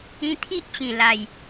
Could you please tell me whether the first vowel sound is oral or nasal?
nasal